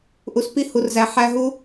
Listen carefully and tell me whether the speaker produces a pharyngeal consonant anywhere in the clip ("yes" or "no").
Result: yes